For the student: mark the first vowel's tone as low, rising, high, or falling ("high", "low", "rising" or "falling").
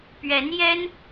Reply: rising